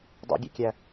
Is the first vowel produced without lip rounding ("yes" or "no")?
no